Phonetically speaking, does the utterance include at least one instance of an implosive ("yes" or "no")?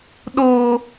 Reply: yes